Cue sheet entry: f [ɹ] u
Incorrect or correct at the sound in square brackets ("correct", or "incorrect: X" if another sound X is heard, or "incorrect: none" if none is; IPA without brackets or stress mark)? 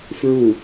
correct